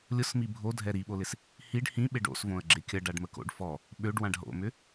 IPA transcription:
lʲ ʊ s m i bʱ o dʱ ɛ ɾ i ɓ o l ɪ s | h i ɖ h ĩ ɓ ɪ ɖ o̰ s v õ ə̯ ɡ͡ǁ ɪ kʲ ɐ ɖ a ɖ m ə k o̰ ɖ f ɔ | ɓ ø ɖ w ã ɖ ɦ o̰ m ʏ

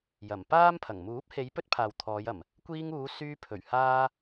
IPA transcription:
j ɐ˨˩ m p aː˥ m pʰ ɐ˨˩ ŋ m uː˨˥ p̚ h e˨˧ j p ɵ˥ t̚ pʰ aː˨ w t̪ʰ ɔː˨˧ j ɐ˨˩ m | kʷ iː˧ ŋ uː˨˧ s yː˧ pʰ ɵ˨˩ ɥ h aː˧

